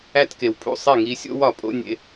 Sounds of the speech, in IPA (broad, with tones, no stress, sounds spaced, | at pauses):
æ˦ t k e˨ w pʰ ṵ˦˨ sˤ e˦˨ ŋ i˧ sʲ o̰˦ w ɒ˨ pʼ o̰˦ nʲ ḛ˧